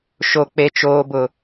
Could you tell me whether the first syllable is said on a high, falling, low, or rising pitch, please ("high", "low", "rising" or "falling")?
low